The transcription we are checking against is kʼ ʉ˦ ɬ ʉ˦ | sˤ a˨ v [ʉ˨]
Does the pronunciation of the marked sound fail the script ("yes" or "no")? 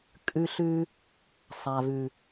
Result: no